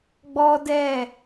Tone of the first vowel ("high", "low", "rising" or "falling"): high